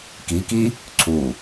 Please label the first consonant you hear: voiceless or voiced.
voiceless